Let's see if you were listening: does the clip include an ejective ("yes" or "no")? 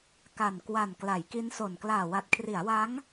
no